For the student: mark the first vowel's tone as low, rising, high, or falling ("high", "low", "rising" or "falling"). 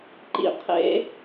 low